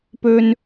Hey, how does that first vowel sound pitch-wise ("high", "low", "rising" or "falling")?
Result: high